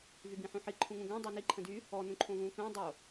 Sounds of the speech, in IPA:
v y b ĩ ħ ũ ħ i ǃʰ ũ ŋ ũ ɡ ə̃ː dˤ u n i ǃʰ ə̃ d y | ɔ n ũ ǃʰ õ v ũː k ə̃ː dˤ o

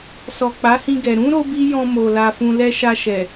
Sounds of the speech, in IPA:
s ɔ˨ k͡p a˨˦ h ĩ˧ ɡ ɛ˨ ɾ ũ˨˦ ɾ o˦ b i˦ j ɔ̃˧ m o˨ l a˧ f ũ˧ l ɛ˧ ʃ a˧ ʃ ɛ˨

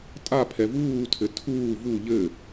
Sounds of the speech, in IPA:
tʼ a pʰ ɛ v uː tʰ ɘ tʰ uː v u ʎ ɘ

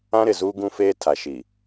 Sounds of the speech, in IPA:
ã˦ ɾ ɪ˨ z uː˦ ɡ ũ˦ f eː˦ tʰ a˨ ʃ i˨

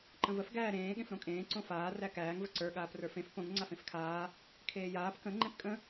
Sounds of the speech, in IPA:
ǃ ə̃ v ə f ɡ æː ɾ ẽː ɠ ẽ f ɾ õ kʼ ẽː ǀ õ f aː r æ k æː ŋ v ə ǀ ə˞ ɠ aː p r ə˞ f ẽ f p õ ŋ ŋ͡ǀ a f ẽ f kʰ aː | kʰ eː j aː p k ə̃ ŋ͡ǃ ẽ p kʼ ə̃

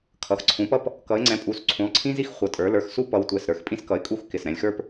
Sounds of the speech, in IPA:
kʰ ʌ˩˧˩ x ǀʰ ũ˨˦ p ʌ˥ p | k ʌ˨˦ ɪ̯ ŋ͡ǀ ɛ̃˨˦ pʼ u˩˧˩ s ǀʰ ũ˨˦ lˠ ǀʰ ĩ˥ z i˥ x χʷ ʌ˩˧˩ tʼ ə˞˨˦ l ə˞˨˦ x s u˥ p ʌ˨˦ w tʷ ɛ˩˧˩ s ɾ ə˞˩˧˩ x pʼ ĩ˥ s k ʌ˨˦ ɪ̯ kʼ u˥ x k ɪ˩˧˩ s ɾ ɛ̃˨˦ lʲ x ə˞˥ p

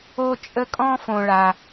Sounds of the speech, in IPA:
o˥ t͡ʃʼ ə˥ kʼ ɔ̃˥ f õ˥ ɭ a˥

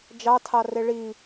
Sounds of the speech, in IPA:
d͡ʒ ɑ tʰ ɑ r e ɭ i

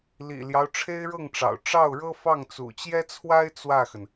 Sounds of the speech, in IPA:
l ḭ˨˩ l j ɑ˦ ʊ̯ ʈ͡ʂʰ e˥ ɪ̯ ɻ ɤ˥˩ ŋ ʈ͡ʂ ɑ̰˨˩ ʊ̯ ʈ͡ʂ ɑ˥˩ ʊ̯ ɻ ɤ˥ f ɑ˥˩ ŋ t͡s ṵ˨˩ t͡ɕ j ɛ˥ t͡sʰ w a˥ ɪ̯ t͡s w ä˥˩ x ə˩ n

